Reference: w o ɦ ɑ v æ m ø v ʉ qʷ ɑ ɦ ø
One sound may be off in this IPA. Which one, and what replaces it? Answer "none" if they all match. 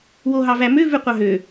none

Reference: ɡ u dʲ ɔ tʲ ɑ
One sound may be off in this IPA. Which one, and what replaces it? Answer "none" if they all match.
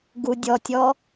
ɑ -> ɔ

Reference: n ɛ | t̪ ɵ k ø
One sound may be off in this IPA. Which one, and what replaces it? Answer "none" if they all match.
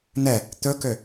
none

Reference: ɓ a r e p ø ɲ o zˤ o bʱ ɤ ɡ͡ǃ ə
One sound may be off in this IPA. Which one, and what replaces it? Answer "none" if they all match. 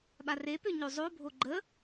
ɤ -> o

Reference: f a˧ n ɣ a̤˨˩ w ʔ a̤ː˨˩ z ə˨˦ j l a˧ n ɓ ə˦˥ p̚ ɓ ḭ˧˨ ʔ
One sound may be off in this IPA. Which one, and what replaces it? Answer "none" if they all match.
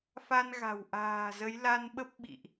none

